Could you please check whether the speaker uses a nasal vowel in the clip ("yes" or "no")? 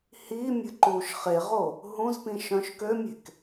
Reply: yes